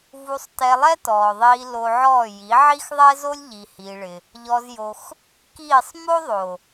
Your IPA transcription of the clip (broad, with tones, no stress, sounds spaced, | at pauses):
v u˧ sˤ t ɛ˧ lˠ ɛ˦ t ɔː˨ ðˤ iː˧ l o˧ ʕ ɔː˦˨ j i˨˦ ʕ i˦ x ðˤ ɛ˦ z o˦ lʲ ʎ i˨ h iː˧ ɭ ɪ˧ | ʎ ɔ˧ z j o˧ x | k iː˦˨ sˤ m o˦ ðˤ o˨